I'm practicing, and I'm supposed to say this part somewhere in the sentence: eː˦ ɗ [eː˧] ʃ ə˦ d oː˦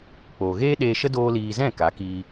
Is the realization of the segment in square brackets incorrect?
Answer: no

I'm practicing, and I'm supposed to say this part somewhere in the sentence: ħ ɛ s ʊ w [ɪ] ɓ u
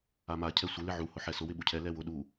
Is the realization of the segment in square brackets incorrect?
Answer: no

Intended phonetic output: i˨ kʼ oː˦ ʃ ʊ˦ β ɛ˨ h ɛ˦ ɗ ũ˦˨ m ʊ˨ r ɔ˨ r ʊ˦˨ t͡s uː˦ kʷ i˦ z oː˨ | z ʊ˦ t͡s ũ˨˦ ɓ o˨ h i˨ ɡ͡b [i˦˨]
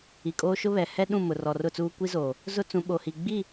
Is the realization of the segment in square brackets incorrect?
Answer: no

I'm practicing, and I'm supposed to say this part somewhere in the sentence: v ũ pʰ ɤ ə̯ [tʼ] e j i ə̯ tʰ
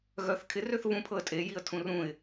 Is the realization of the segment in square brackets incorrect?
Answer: no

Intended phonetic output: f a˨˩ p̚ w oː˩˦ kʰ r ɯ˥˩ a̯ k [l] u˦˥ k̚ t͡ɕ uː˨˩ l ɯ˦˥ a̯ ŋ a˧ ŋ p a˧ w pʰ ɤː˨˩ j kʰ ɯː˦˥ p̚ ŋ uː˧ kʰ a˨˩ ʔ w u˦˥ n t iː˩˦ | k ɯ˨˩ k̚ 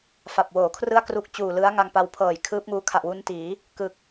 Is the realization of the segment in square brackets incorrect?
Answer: yes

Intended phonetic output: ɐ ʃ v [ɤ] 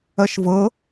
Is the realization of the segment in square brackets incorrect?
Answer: no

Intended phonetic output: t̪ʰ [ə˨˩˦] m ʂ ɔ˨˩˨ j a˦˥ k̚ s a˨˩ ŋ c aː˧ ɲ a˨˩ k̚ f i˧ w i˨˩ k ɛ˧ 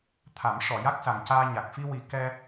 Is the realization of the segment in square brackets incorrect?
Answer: yes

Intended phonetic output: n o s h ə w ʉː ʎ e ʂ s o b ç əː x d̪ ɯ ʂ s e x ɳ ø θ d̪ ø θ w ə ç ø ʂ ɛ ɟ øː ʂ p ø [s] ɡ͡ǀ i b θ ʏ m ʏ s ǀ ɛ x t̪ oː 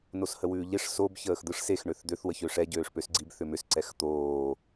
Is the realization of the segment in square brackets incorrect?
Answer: no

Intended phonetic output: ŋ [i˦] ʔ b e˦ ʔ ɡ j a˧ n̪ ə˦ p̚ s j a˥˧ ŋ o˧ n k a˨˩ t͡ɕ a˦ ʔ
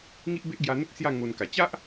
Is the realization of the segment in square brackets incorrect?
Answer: no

